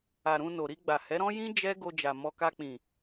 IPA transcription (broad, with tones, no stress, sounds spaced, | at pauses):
a˨ ɾ ũ˧ n o˨ ɾ i˧ ɡ͡b a˨ h ɛ˨˦ ɾ ɔ̃˦ j ĩ˦ d͡ʒ ɛ˦ ɡ o˧ d͡ʒ a˨ m ɔ˨ k a˧ k͡p ĩ˨